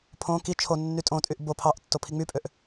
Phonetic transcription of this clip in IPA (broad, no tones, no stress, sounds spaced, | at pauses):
pʰ õ k i t͡ʃʰ o nː y tʼ õ tʼ y ʔ b o pʰ ɑ ʔ tː o pʰ i ŋ͡m y pʼ ø ʔ